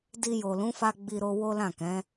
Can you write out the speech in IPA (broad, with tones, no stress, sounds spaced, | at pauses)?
d i˧ j o˨ l ũ˨˦ f a˧ ɡ͡b i˧ ɾ o˧ w o˦ l ã˦˨ k ɛ̃˨˦